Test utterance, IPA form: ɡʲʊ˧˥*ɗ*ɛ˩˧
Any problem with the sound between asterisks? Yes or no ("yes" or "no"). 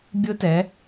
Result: yes